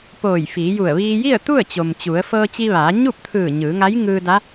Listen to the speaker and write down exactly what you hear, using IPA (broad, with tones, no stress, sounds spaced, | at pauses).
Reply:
p oː˧˩ j f iː˩˧ j u˧˩ ə̯ ʋ iː˧ j i˥˨ ə̯ t̪ u˥˨ ə̯ t͡ɕ o˩ m t͡ɕ u˩˧ ə̯ f ɤː˧ t͡ɕ i˧ ʋ aː˩˧ ɲ u˥˨ p̚ t̪ʰ ɯː˧˩ ɲ ɯː˩˧ ŋ a˧˥ j ŋ ɯː˧ d a˧˥